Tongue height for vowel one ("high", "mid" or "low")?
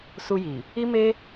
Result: high